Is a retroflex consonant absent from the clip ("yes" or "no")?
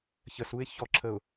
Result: yes